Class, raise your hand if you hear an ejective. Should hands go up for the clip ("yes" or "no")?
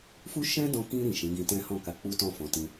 no